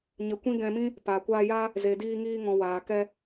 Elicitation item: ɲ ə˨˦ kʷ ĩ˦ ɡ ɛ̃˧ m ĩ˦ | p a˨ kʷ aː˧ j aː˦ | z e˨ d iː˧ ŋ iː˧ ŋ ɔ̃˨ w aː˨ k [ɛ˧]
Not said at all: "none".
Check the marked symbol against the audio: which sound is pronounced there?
ɛ˧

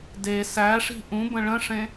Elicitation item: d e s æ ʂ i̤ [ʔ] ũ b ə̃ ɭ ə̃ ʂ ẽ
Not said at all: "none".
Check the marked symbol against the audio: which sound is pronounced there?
ʔ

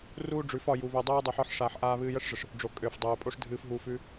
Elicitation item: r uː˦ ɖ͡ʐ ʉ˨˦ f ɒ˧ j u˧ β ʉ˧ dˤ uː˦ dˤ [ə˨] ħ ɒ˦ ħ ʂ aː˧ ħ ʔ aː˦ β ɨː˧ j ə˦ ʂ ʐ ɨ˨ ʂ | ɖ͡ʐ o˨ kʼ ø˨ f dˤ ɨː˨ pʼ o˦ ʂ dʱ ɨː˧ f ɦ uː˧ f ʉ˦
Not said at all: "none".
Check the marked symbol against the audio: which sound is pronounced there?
ə˧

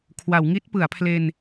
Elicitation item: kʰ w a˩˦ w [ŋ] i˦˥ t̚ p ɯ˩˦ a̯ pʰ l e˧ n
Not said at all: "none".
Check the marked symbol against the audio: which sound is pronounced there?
ŋ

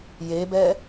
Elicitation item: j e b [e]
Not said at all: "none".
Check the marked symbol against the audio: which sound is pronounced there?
ɛ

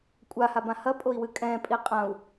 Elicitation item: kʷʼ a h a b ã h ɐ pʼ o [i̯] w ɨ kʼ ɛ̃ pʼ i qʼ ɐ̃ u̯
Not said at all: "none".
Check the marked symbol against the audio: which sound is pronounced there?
i̯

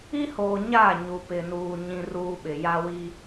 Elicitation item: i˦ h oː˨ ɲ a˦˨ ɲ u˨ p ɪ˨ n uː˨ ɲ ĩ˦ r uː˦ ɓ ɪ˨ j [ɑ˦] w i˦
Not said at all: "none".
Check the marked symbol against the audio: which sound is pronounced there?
a˦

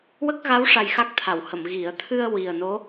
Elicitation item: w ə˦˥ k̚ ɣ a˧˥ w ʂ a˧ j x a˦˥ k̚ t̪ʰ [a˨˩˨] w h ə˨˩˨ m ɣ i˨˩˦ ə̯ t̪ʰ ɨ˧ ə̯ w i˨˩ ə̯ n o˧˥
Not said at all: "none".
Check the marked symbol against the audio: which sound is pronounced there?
a˨˩˨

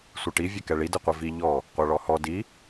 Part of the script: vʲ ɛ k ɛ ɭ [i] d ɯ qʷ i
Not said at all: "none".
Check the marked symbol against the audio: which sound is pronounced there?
i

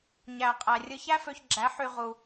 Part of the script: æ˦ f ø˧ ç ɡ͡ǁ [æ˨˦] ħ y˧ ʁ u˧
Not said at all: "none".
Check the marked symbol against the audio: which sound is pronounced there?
æ˨˦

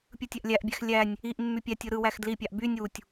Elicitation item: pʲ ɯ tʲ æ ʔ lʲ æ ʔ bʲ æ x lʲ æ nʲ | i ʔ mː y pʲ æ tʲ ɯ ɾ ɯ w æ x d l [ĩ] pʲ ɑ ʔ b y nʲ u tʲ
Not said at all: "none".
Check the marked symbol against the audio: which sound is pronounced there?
i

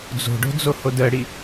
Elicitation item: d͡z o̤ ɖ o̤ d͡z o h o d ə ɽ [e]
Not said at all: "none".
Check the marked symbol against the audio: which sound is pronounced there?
i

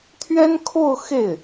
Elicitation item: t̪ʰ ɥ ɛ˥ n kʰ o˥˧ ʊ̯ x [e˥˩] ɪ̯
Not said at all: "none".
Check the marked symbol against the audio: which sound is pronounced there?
e˥˩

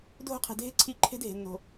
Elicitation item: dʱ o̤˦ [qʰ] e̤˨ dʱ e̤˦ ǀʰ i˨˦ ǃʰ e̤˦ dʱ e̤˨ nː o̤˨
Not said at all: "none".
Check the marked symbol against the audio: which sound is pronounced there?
qʰ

